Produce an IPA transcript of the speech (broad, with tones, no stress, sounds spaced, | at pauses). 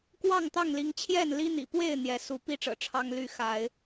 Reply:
k w ɑ˥˨ ŋ t̪ ɑ˥˨ ŋ l i˨˦ ŋ t͡ɕʰ j ɛ˥˨ n l i˦ n̪ ḭ˨˩ p w e˥˨ ɪ̯ n̪ j ɛ˨˦ s u˨˦ p i˥˨ ʈ͡ʂ ɤ̰˨˩ ʈ͡ʂʰ ɑ˦ ŋ l y˥˨ x a˨˦ ɪ̯